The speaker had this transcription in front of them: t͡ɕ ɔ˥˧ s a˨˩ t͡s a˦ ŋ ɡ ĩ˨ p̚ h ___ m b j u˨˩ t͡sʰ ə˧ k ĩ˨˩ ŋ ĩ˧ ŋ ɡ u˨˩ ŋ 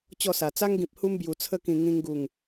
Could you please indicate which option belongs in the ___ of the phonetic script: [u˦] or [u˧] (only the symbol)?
u˦